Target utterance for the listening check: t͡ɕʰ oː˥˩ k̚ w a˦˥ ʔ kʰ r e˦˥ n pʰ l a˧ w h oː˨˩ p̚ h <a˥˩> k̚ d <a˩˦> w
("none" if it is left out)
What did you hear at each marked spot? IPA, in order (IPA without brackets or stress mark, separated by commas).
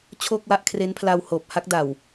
a˥˩, a˨˩